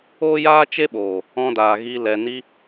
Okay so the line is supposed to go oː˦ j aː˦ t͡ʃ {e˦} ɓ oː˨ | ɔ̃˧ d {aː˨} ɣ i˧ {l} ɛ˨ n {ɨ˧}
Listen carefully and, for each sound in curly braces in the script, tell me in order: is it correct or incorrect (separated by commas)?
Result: correct, correct, correct, incorrect